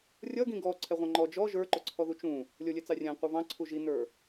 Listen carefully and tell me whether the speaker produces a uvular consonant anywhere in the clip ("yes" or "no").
yes